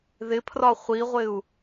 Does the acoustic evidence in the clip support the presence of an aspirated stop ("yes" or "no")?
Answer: yes